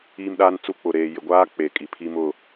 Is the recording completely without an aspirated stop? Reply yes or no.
no